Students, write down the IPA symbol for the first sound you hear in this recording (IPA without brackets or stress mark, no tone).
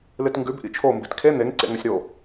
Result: l